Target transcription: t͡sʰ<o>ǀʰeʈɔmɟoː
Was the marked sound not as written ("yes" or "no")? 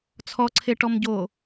yes